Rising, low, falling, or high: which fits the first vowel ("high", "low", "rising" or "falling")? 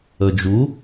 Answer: low